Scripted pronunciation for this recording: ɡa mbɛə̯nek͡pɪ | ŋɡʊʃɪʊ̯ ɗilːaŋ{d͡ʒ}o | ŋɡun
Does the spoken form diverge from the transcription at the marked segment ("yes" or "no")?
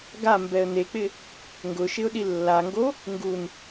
yes